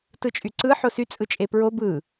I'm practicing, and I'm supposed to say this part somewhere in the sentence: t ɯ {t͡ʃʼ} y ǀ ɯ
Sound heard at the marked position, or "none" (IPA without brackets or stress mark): t͡ʃʼ